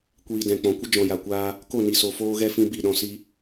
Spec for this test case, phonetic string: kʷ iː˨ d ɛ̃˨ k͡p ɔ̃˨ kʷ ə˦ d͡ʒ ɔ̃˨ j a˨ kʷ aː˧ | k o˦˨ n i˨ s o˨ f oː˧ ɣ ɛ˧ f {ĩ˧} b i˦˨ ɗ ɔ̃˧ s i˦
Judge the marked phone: correct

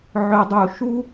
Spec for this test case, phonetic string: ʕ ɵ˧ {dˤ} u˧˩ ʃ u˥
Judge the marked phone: correct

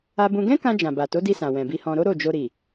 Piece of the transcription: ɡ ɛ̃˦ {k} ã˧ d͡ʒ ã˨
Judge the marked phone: correct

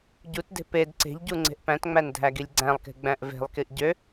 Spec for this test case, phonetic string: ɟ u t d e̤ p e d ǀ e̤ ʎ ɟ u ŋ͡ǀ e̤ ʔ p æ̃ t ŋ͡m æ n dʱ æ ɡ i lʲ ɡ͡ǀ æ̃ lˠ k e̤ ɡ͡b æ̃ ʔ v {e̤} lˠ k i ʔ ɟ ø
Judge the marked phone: correct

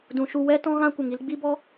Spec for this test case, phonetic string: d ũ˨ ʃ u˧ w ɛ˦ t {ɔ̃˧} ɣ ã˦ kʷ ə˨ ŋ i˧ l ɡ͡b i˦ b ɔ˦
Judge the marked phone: incorrect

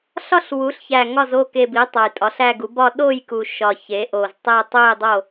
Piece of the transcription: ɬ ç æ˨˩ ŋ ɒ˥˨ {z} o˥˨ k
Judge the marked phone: correct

